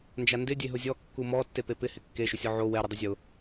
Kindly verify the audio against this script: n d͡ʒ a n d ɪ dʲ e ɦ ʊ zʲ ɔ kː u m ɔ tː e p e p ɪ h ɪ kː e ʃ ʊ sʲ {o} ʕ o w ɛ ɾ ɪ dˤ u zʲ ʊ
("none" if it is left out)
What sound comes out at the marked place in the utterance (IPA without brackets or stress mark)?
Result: ɔ